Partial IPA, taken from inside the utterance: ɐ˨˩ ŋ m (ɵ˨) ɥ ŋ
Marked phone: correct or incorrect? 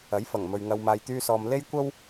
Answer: correct